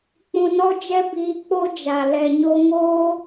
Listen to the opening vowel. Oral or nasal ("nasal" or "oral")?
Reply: nasal